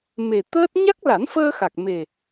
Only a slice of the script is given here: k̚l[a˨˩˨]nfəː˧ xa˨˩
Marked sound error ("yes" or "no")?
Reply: yes